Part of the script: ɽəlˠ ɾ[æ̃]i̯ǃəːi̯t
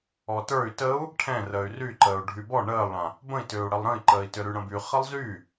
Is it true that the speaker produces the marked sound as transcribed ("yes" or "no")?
no